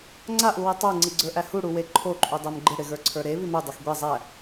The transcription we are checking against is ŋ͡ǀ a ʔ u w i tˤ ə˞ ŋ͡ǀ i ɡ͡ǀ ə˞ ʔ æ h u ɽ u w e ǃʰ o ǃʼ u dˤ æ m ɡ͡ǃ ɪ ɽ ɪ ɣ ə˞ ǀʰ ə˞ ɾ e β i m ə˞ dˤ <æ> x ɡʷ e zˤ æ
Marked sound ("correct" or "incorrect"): incorrect